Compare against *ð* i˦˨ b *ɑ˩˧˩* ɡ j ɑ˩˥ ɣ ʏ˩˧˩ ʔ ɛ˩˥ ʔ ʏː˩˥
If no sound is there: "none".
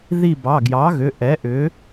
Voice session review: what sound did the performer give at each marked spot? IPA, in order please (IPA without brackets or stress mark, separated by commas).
ð, ɑ˩˧˩